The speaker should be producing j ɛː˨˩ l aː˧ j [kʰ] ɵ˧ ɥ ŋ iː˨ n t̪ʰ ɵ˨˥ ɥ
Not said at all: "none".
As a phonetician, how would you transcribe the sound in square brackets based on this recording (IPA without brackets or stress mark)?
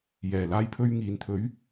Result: pʰ